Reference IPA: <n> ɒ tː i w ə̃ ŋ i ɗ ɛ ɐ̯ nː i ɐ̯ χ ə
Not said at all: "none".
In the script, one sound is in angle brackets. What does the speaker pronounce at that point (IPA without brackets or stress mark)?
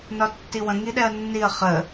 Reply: n